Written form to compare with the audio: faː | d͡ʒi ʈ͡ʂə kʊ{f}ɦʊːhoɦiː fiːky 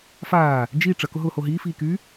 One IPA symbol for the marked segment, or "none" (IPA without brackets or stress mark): none